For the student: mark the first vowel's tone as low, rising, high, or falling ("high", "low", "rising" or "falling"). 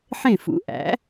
falling